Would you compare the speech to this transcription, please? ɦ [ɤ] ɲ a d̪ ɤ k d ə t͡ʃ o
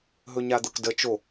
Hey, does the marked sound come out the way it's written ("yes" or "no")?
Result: no